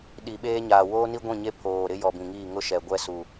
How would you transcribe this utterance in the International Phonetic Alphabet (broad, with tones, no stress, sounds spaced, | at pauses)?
ɗ i˨ ɓ eː˦ ɲ aː˨ w oː˦ n i˦ ɡʷ ĩ˦˨ ɲ e˦ pʰ oː˨ ɾ ɪ˦ j ɔ˨ b ĩ˨ ŋ iː˦˨ ŋ ʊ˦ ʃ ɛ˨ ɡʷ ɛ˦ s u˨